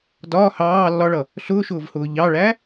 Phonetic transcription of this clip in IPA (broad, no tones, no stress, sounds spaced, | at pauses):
d ɒː h ɑː lː ɒ ɭ ʌ | ɬ ʊː ʃ ʊː v h ʊː ʎ ɑ ɭ æ